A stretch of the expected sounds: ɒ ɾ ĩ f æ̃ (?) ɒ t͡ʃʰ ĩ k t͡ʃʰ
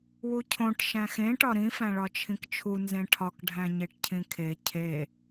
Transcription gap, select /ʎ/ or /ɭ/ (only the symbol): ɭ